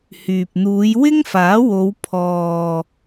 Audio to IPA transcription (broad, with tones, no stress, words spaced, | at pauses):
hyː˨p̚n̪uː˨˧j wɪ˥ŋfaː˨˥wo˨˧w pʰɔː˨